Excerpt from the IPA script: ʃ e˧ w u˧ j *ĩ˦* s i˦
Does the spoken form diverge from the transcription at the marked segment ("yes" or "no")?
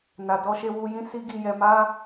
no